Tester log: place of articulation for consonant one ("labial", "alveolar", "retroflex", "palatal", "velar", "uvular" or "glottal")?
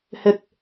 glottal